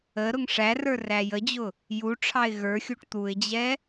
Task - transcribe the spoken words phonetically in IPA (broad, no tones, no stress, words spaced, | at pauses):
ə ɾʊŋʂærə˞ ræjəd͡ʑʊ | juʈ͡ʂʰɑɪ̯ ɣə˞xʲuʈ t̪uɪ̯d͡ʑɛ